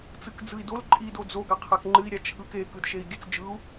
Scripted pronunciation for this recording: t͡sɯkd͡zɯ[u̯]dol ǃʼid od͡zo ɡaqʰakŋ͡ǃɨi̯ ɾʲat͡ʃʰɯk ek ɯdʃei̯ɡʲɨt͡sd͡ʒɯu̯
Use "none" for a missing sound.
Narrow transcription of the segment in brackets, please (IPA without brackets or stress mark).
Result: i̯